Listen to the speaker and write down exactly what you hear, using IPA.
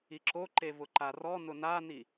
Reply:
i ǁ o ǃ e v ʊ ǃ a r ɔ n ʊ n a n i

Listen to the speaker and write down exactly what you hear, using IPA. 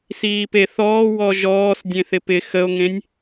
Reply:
s iː p e θ ɔː w ɔ ʒ ɔː s dʲ ẽ θ ɪ p ɪ x ə o̯ ŋ ẽ nʲ

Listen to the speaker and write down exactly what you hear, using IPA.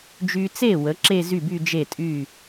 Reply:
d͡ʒ y˧ t͡s e˥˩ w ə˩˥ ǁ e˥˧ z y˥˩ b y˥˧ d͡ʒ e˥˩ tʼ y˥˩

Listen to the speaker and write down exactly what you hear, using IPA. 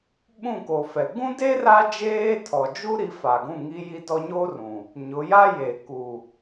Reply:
ɓ ũ˦˨ k o˨ f ɛ˨ ɡ ũ˦ d e˦ r a˦ d͡ʒ eː˦ tʰ ɔ˨ d͡ʒ u˦ ɾ i˨˦ f a˨ ɡ ũ˦˨ ŋ i˦ j i˦ d ɔ˦ ɲ o˦ r ũ˨ | ɲ ʊ˨˦ j a˦ j e˨ k u˨

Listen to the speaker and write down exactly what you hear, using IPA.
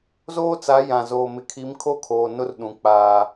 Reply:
z oː˦ t͡s a˨˦ j ã˨ z oː˨ m ɪ˨ kʰ i˨˦ m kʰ o˦˨ kʰ oː˨ n ʊ˦ r ɗ ũ˨ k͡p aː˦

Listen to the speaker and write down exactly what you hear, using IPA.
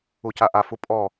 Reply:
u c a ʔ a f u pʼ ɔ

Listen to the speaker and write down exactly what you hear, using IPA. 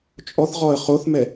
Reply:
t͡ʃʼ ɔ θ ʁ ɔ ə̯ χ o θ m ɛ

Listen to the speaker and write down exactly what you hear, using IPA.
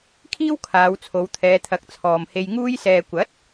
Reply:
kʰ iː˥ w kʰ aː˨˧ w t͡sʰ o˨˧ w t̪ʰ ɛː˨˧ t̪ʰ ɐ˨˥ k̚ t͡sʰ ɔː˨ m h e˧ j ŋ uː˥ j s ɛː˧ kʷ ɐ˨˥ t̚

